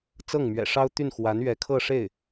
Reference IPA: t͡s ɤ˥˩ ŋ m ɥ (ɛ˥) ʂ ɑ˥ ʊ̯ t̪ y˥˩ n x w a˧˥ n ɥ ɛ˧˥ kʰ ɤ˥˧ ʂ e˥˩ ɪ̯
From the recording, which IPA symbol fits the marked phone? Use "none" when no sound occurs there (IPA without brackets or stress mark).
ɛ̰˨˩